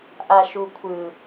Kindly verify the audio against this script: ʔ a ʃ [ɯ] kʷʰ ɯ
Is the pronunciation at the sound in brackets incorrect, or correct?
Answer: incorrect